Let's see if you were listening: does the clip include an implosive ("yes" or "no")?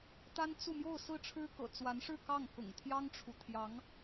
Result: no